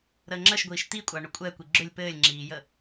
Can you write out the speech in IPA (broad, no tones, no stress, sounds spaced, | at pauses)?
ɾ əː ŋ͡ǁ ə ʃ ɡʷ iː ʃ t̪ i kʷʼ a ɳ ʏ kʷʼ ɛ kʷ i ɡ͡ǁ ʏ lʲ p ɘː lʲ ŋ͡ǁ iː j ə